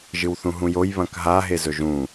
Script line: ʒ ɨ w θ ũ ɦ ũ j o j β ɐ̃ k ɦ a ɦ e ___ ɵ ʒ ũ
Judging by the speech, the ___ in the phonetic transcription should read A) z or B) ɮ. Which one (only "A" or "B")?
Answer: A